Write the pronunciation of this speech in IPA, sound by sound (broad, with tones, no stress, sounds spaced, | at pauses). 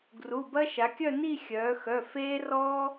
ɡ r u˩˧˩ b ɐ˥ ʃ a˩˧ kʲ œ˥˧ n i˥˧ xʲ œː˩˧ x œ˩˧˩ f eː˥ r ɔː˥